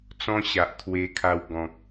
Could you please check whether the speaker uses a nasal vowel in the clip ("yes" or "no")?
yes